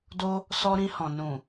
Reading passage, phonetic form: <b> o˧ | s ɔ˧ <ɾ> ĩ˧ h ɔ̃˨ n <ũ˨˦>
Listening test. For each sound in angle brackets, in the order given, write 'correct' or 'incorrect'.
incorrect: d, correct, incorrect: ũ˨

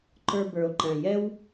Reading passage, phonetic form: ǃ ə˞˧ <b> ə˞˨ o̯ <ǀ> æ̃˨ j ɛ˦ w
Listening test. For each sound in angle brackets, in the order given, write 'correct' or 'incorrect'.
correct, incorrect: ǃ

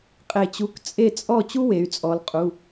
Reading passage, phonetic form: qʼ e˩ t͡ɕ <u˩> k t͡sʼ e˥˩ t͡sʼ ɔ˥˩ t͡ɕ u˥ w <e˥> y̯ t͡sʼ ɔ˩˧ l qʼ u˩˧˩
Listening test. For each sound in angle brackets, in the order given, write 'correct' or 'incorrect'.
incorrect: u˩˧˩, incorrect: e˩˧

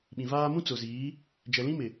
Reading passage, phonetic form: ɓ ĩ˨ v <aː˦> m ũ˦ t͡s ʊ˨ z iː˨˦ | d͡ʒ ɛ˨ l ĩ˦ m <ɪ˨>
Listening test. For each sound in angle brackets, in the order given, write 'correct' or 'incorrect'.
correct, correct

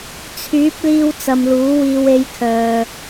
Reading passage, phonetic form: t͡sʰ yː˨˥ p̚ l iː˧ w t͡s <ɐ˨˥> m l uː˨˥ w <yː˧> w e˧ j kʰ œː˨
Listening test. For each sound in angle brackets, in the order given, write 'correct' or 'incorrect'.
incorrect: ɐ˨, incorrect: iː˧

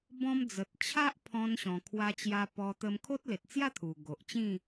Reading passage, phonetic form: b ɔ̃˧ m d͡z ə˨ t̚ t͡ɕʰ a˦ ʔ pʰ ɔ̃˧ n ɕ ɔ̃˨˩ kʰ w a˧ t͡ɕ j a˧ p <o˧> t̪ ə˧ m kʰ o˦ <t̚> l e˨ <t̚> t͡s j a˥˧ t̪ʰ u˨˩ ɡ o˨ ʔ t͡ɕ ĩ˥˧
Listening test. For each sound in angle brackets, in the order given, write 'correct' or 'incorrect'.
incorrect: ɔ˧, correct, correct

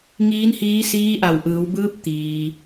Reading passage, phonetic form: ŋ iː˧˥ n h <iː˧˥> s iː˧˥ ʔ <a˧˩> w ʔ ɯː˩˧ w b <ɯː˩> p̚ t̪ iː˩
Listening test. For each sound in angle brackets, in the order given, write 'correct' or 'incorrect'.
correct, correct, incorrect: ɯː˧˥

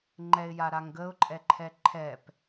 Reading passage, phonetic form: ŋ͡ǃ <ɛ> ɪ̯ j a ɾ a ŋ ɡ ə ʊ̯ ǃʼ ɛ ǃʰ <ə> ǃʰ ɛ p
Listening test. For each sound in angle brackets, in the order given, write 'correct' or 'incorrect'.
correct, incorrect: ɛ

